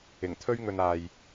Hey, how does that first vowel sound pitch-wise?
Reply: low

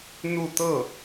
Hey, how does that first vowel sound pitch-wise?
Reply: falling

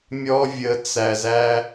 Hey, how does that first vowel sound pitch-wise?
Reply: high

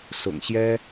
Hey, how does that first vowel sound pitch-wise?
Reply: low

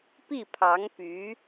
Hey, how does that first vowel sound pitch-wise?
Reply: falling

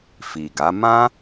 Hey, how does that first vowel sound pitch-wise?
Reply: low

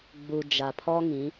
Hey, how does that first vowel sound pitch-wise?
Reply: low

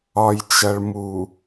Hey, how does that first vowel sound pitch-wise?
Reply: low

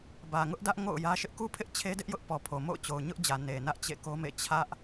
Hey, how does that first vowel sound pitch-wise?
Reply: low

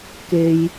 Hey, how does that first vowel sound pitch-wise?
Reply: low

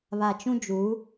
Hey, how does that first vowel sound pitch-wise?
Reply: low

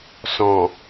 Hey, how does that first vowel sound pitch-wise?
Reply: low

